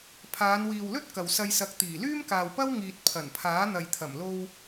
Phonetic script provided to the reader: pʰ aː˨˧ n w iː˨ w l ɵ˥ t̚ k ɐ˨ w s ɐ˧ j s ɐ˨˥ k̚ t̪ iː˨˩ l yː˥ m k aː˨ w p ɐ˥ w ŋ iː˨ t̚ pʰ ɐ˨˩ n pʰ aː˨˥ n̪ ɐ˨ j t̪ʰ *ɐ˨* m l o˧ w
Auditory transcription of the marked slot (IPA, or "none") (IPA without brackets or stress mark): ɐ˨˩